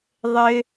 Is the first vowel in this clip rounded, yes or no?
no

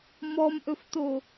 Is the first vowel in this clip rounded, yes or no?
yes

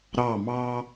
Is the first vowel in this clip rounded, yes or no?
no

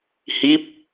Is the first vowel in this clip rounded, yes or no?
no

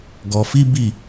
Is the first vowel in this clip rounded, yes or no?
yes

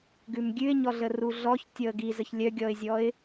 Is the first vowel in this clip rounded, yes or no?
yes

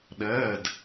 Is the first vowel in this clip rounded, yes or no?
no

